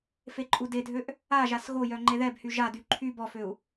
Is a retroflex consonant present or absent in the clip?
absent